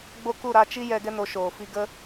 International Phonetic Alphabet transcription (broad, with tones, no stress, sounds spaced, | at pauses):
ɡ͡b o˦ k u˦˨ ɾ a˧ t͡ʃ i˦ j ɛ˧ ɡ ɛ˦ n o˨˦ ʃ oː˨ f i˧ ɡ ə˦